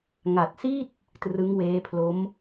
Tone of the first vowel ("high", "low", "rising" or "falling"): low